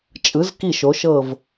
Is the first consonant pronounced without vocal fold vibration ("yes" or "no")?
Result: yes